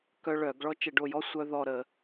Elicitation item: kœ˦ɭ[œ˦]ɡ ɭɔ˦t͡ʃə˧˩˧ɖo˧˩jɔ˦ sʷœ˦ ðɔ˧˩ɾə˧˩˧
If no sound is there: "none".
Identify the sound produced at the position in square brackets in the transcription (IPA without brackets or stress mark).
œ˧˩˧